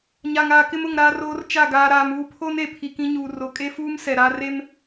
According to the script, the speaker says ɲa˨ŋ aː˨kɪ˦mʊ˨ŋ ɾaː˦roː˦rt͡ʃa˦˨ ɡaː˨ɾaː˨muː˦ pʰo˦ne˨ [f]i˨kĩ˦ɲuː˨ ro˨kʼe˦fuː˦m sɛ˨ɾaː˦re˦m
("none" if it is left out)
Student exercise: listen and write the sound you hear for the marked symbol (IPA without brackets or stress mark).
pʰ